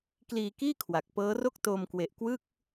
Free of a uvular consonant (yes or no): yes